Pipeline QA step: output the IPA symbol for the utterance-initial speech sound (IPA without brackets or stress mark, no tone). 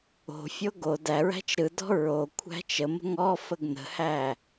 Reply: o̤